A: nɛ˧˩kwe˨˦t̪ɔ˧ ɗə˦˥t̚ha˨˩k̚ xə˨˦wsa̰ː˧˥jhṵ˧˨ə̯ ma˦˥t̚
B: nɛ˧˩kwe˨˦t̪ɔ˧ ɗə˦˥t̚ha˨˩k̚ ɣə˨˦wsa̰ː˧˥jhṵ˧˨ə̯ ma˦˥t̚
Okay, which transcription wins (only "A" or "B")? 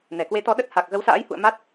B